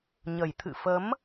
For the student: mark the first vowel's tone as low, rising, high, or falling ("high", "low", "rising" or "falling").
low